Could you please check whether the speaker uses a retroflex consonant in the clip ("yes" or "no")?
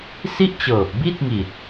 no